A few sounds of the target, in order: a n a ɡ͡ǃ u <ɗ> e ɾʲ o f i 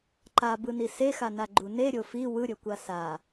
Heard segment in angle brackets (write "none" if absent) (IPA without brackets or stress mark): n